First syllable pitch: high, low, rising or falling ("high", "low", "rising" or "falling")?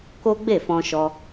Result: high